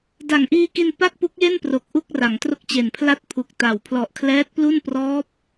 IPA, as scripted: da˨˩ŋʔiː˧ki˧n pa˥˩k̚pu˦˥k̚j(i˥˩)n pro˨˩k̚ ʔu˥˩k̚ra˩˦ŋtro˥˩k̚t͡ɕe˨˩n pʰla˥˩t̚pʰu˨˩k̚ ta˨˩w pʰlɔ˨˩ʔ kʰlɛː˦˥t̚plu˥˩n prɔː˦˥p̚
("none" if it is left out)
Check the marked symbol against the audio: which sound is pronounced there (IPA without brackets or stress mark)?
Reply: e˥˩